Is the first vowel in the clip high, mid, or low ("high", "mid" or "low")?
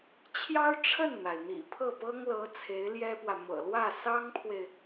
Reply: low